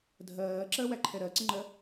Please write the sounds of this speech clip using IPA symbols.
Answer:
dʱ ɜː ǁ ɜ w æ ǃʰ ɛ ɾ ɜ ǀ ə ŋ͡ǃ ɜ

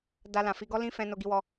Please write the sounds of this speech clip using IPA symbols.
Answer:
d a˧ l ã˨ f i˧ ɡ ɔ˦ l ĩ˦ f ɛ̃˧ n o˧ ɡ i˧ w ɔ˧

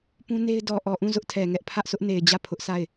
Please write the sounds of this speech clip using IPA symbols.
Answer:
p ũ˦ n e˦ ɪ̯ d ɔ˨ ʔ ɔ˨ ʔ ũ˦˨ z ʊ˦ ʔ tʰ ɛ˨ ŋ ɛ˦ ʔ pʰ ä˦ ʔ s ʊ˦ ʔ n e˨ ɪ̯ d͡ʑ ä˦˨ pʰ ʊ˦ ʔ s a˦˨ ɪ̯

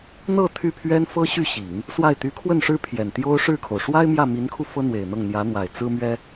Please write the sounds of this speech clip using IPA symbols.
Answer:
n̪ ɤ˥˧ t̪ʰ y˥˩ pʰ ɥ ɛ˥ n f ɤ˥ ɕ y˥˩ ɕ i˨˩˦ ŋ | s w a˥˩ ɪ̯ t̪ y˧˥ kʰ w ə˥˩ n ʂ ɻ̩˥ pʰ j ɛ˨˩ n t̪ j o˥ ʊ̯ ʂ ɻ̩˥˩ kʰ o˩ ʊ̯ ʂ w a˥ ɪ̯ m j ä˥˩ m i˧˥ n kʰ u˧ f ɤ˥ n̪ w e˨˩ ɪ̯ n̪ ɤ˥˩ ŋ n̪ j ä˧˥ n̪ w a˨˩ ɪ̯ t͡s ɹ̩˥ m ɥ ɛ˥

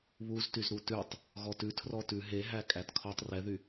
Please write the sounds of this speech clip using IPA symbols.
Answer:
β u z t y z ɾ u t ʉ tˤ | ɣ ɔ t ʉ tʰ r ɔ t ʉ ɦ e ɦ æ kʼ æ t kʰ ɔ tˤ r ɛ ð y

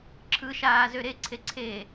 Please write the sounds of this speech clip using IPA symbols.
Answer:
ǁʰ ɯ ʃ aː z ø ɾ e ǀʰ e ǀʰ eː

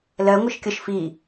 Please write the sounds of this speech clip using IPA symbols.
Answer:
l ɜ ŋʷ ɪ ʃ kʲ ʌ ʃ f i

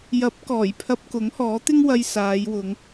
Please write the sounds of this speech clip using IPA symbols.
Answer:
j ɐ˨˥ p̚ k ɔː˨˩ j pʰ ɐ˧ p̚ k ʊ˨˥ ŋ h ɔː˨˥ t̪ ɪ˥ ŋ w ɐ˧ j s aː˨˧ j w ʊ˨˧ ŋ

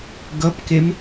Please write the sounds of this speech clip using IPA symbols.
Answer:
ɡ ʌ p k e m

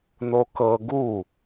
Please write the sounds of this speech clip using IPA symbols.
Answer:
n o k ɤ ɡ u

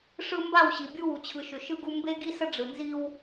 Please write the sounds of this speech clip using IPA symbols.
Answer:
ʂ ɯ˦ m b a˦˨ w ɕ i˨ bʲ u˦ w u˨ t͡ɕʰ ɯ˨ ʃ ʏ˨ ʃ ɯ˦ ɡ u˦ m b e˦ ɡ i˦ s ə˦ ɖ͡ʐ ɯ˨ n z i˦ w

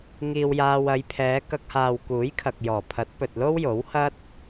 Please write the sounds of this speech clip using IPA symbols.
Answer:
ŋ iː˧ w j aː˧ w ɐ˨˧ j pʰ ɛː˨˧ k ɐ˧ k̚ h aː˨ w k uː˨˥ j kʰ ɐ˨ k̚ j ɔː˨˩ pʰ ɐ˨˥ t̚ p ɵ˨ t̚ l o˥ w j o˨˥ w h ɐ˥ t̚

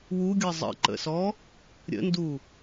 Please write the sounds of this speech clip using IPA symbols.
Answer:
w u ɡʲ ɤ zˤ ə̰ ǃ ə̰ s ɔ | ɾʲ ə̰ n d u

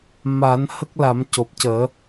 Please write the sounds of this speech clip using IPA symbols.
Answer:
m a˨˩˦ n h ə˦˥ k̚ l a˨˩˦ m c o˨˩ p̚ c əː˨˩˦

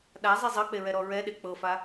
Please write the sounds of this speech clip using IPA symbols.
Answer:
ɗ a zˤ i zˤ ɤ k͡p e ɹ ɛ ɾ ɔ ɹ ɛ ɗ e k͡p ɤ f a

